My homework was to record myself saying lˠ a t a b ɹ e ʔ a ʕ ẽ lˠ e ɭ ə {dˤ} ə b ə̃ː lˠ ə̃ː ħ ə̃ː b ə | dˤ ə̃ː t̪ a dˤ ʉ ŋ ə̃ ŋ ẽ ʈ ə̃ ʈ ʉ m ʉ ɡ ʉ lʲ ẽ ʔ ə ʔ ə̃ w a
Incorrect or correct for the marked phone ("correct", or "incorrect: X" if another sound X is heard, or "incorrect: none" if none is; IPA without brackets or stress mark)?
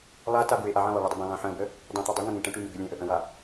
correct